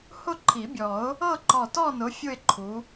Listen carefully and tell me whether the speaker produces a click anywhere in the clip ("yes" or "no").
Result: yes